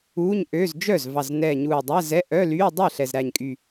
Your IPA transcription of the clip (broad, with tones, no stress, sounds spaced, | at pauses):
uː˧˥˧ ɲ ʔ øː˧˥˧ z d͡ʒ œ˥˩ z v ɑ˨˩ z n ɛː˨˩ ɲ uː˨˩ dˤ æ˧˥˧ z ɛ˧˥˧ ʔ œ˧˥˧ l yː˧˥˧ dˤ ɛ˥˩ ɬ ɛ˨˩ z ɾ æ˨˩ ɲ kʼ y˨˩